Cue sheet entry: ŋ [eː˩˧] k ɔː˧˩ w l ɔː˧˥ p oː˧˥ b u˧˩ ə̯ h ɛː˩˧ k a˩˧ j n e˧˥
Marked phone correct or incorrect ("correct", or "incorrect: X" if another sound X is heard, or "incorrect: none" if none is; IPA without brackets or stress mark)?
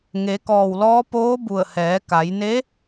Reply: incorrect: e˩˧